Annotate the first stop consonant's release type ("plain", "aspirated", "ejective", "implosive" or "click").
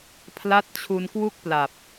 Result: aspirated